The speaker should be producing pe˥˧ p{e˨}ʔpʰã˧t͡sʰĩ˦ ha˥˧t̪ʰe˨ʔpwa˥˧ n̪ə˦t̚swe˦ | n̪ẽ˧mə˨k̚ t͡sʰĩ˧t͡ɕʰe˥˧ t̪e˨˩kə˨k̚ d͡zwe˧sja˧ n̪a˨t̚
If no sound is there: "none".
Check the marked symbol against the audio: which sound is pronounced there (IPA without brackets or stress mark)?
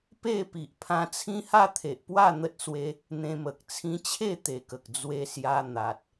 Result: i˨